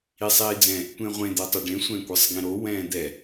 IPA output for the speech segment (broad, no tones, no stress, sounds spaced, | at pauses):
i sˤ iː d͡z ɛ̃ | tʷ ẽ ʁʷ ẽ d̪ ɛ tˤ o ɖ ẽ sʷ ɛ̃ kʷ ɯ sˤ ɡ ẽ ɾ o w ɛ̃ː d̪ ɛ